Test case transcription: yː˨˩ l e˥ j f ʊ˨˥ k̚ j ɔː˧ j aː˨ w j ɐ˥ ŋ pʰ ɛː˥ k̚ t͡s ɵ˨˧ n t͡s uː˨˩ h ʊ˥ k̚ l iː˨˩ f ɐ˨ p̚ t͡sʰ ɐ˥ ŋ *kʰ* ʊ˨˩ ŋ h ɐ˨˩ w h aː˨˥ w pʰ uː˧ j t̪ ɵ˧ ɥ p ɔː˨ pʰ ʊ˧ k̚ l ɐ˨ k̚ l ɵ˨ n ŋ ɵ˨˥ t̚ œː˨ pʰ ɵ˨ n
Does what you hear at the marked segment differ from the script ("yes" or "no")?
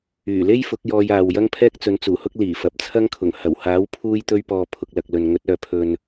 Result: no